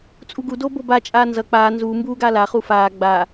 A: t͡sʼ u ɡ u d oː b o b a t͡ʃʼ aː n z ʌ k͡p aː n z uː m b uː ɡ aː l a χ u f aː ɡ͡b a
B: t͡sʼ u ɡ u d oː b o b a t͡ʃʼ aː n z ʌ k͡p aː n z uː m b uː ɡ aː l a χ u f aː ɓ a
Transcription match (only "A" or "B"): A